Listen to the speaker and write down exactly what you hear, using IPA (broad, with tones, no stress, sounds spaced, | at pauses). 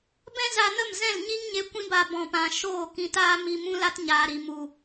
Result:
b ɛ̃˦ z a˧ n ə˦˨ m z ɛ̃˦˨ l ɲ i˦ ŋ ɲ e˧ kʷ ĩ˦ b a˧ b ɔ̃˨ p ã˨ ʃ oː˦˨ k ĩ˧ t aː˦ m i˧ m ũ˦ l a˦ t ɲ aː˨ ɾ i˨ m u˨